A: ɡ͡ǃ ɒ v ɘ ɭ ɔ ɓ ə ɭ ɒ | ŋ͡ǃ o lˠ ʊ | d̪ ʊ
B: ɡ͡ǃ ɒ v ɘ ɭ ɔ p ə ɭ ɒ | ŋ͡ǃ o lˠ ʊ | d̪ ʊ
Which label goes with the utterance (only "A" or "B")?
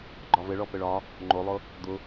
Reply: B